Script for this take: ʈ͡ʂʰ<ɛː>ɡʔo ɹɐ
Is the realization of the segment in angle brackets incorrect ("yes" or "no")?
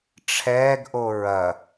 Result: no